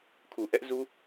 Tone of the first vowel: low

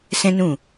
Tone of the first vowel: high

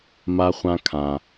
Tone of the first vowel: high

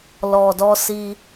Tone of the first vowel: low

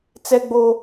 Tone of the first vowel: high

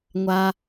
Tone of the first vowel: high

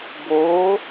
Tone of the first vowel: rising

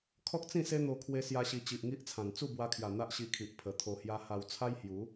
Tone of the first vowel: high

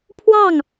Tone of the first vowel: falling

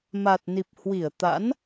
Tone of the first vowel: low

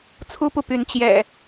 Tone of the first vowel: high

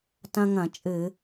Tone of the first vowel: high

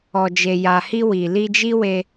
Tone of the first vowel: low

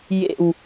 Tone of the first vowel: low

